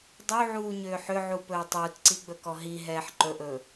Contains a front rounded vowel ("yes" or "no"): yes